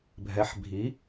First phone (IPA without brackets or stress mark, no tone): bʱ